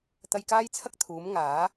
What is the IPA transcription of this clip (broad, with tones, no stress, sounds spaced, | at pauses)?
t̪ ɐ˧ j k aː˥ j t͡sʰ ɐ˥ k̚ t̪ʰ uː˨˥ m ŋ aː˨˥